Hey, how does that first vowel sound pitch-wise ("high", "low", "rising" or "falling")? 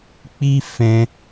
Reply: high